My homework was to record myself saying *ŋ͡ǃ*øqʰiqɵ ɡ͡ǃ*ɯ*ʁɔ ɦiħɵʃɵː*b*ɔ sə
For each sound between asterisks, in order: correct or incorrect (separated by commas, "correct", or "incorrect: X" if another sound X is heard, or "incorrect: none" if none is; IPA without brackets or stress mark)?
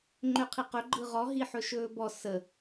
correct, correct, correct